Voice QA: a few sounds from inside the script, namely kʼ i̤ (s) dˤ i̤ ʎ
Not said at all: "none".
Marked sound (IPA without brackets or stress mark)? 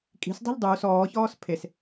s